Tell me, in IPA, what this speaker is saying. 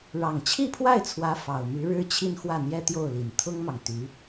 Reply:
ɻ ɑ˨˩ ŋ t͡ɕʰ i˥˧ pʰ w a˥˩ ɪ̯ t͡sʰ w ä˧˥ f ɑ˨˩ ʊ̯ m y˧˥ ɻ ɻ̩˥ t͡ɕʰ i˥˧ n x w ä˥˩ n̪ j ɛ˥ t̪ j o˥˩ ʊ̯ l i˨˩ n t̪ʰ ʊ˥ ŋ m ɑ˨ ŋ t̪ y˧˥

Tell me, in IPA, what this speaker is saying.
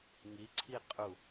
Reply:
ŋ i ǀʰ i qʼ u

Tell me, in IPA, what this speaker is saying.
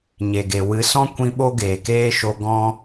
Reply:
ɲ e˨ ɡ e˨ w ɨ˨˦ s ɔ̃˦ kʷ ĩ˧ ɓ o˦ ɡ eː˨ k eː˦ ʃ o˧ ɡ ɔ̃˦

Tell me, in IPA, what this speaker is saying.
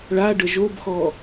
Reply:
ɭ a ɖ ə ʒ o b x ɔ

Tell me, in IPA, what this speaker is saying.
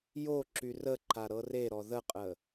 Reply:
j o ǁ y r ə ǃ a ɾ ɤ r e ɾ ɔ ð ə qʼ ə

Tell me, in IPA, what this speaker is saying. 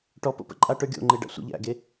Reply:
ʈ ɔ p o̰ p ə̰ ǃʼ a ʈ ə˞ ɡʲ o̰ ŋ͡ǃ e ɖ a̰ sʷ ə̰ ʎ æ̰ ɡ e

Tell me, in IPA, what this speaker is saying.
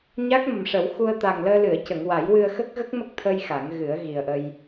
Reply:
ɲ a˦˥ k̚ m ə˨˩ m ʂ ə˨˩˦ w x u˧ ə̯ t̪ a˨˩ ŋ l əː˧ l ɨ˨˩˨ ə̯ c ə˨˩˨ ŋ w a˨˩˦ j w ɨ˧ ə̯ x ə˦˥ k̚ ɣ ə˦˥ k̚ m ə˦˥ k̚ t̪ʰ ə˧ j x a˨˩˦ ŋ ɣ ɨ˨˩˦ ə̯ ɣ i˨˩ ə̯ ʔ ə˧ j

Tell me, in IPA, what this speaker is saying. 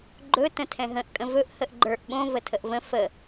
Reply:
ɡ͡ǃ ɵ t ə̃ tʰ ɛ̃ ɦ ə̃ ʔ kʼ ə̃ v ɵ ʔ h ə ʔ ɡ͡ǃ ə˞ ʔ ɓ õ v ə tʰ ə ʔ v ə̃ f ə

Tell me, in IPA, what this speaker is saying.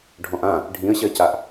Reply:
ɖʱ ɔ̃ ʔ ã | ɖʱ ĩ ə̯ ɕ ɜ c a ʔ

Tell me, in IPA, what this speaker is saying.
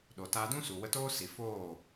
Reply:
ɗ o˨ t aː˧ d ũ˦ s u˨ w ə˧ t oː˦ s i˨ f oː˦˨

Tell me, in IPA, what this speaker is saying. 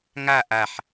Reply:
ŋ a ʔ a ħ

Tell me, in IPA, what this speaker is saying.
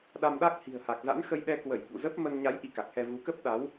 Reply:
ɗ a˧ m ɗ a˦˥ k̚ h i̤˨˩ ə̯ h a˨˩ k̚ z a̰˧˥ n x ə˧ j ɗ ɛ˧ k w ə˧˩ j ɓ ṵ˧˨ z ə˦˥ p̚ m ə˧ n ɲ a˨˦ j ʔ i˧ k a˨˩ k̚ h ɛ˧ v u˨˦ k ə˦˥ p̚ ɗ a˨˦ w

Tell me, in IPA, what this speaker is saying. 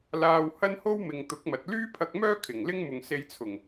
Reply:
l aː˧ w h ɐ˥ n h o˥ w m ɪ˨ ŋ t̪ ʊ˨˥ k̚ m ɐ˨ t̚ l yː˥ pʰ ɐ˧ k̚ m œː˥ kʰ ɪ˨˩ ŋ l ɪ˥ ŋ m ʊ˨ ŋ s e˧ j t͡sʰ ʊ˨˩ ŋ

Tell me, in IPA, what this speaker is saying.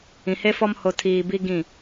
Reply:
ĩ˨ h e˦ f ɔ˦ m h o˨ tʰ iː˨ b i˦ ɡ ĩ˦˨

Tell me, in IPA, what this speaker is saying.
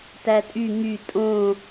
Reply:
t æ tʼ y ŋ y tʼ õ

